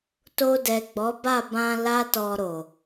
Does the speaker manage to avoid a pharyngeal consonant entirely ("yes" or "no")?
yes